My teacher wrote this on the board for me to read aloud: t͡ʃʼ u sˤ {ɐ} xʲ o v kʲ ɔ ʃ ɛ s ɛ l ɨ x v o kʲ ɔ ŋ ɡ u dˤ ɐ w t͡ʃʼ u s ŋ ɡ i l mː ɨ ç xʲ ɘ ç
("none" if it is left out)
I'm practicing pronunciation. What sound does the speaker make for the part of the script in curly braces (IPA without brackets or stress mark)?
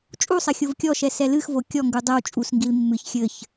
ɐ